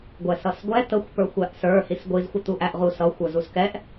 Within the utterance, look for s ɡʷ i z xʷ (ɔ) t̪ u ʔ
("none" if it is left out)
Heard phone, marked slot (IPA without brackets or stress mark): ʌ